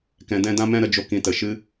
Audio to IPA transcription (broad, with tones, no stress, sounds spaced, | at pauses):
k ɛ̃˧ d ɛ̃˦ d ã˦ m ɛ̃˦ ɾ ə˧ d͡ʒ o˧ k ĩ˧ t ə˨ ʃ ɨ˧